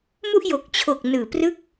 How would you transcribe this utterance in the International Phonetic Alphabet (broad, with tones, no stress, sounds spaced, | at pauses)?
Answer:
m u˥˩ ʔ j o˨˩ k̚ t͡ɕʰ o˨˩ k̚ n ɯː˨˩ p r ɯ˥˩ k̚